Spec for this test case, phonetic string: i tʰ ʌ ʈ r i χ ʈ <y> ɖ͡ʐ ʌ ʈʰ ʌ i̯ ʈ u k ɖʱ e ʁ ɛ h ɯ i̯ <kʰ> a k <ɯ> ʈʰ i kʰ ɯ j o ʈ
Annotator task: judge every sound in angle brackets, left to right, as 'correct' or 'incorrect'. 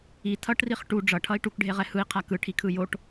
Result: incorrect: u, incorrect: qʰ, correct

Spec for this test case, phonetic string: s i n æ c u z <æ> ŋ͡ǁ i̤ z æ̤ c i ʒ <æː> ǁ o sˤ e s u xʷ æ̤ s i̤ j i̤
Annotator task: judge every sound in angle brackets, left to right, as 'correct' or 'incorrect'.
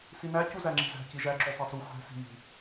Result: correct, incorrect: æ

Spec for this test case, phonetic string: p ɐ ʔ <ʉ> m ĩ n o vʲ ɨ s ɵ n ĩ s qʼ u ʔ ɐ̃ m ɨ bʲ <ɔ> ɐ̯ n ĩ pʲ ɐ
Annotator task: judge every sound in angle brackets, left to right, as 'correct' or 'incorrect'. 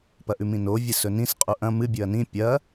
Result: correct, incorrect: ɵ

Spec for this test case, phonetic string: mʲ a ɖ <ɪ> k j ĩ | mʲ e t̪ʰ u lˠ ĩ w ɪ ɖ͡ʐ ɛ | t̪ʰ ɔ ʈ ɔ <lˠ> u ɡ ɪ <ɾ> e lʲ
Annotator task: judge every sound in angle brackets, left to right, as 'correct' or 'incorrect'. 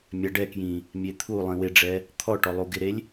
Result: incorrect: ɛ, correct, correct

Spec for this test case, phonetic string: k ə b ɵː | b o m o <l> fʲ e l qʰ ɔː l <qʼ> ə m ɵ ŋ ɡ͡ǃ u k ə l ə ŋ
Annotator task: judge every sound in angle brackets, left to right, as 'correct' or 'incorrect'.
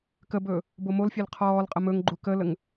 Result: correct, correct

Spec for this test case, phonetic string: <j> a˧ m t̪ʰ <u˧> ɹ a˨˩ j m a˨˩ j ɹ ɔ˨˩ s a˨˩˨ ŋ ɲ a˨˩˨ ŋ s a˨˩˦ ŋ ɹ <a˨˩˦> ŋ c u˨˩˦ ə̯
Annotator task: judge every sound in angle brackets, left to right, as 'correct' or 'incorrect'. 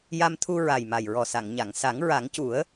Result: correct, correct, correct

